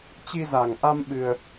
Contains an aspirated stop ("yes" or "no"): no